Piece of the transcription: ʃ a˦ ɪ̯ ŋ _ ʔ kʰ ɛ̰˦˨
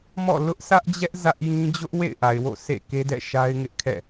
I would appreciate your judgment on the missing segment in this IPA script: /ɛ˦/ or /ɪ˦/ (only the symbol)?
ɪ˦